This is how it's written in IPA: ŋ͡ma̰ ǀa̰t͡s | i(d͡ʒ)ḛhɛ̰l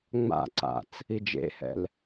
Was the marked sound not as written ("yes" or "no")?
no